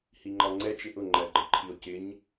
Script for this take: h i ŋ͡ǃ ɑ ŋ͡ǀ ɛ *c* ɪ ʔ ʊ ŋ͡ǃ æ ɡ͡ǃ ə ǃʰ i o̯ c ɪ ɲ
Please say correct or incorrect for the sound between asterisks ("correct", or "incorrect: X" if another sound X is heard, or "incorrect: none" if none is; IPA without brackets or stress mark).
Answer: incorrect: t͡ʃ